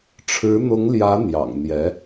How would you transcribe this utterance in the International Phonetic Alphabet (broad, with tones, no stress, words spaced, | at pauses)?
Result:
ʈ͡ʂʰɻ̩˧˥n̪ʊ˧˥ŋljä˧˥ n̪jɑ̰˨˩ŋ n̪jɛ˧˥